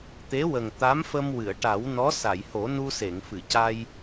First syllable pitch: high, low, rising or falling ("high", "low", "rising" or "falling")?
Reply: rising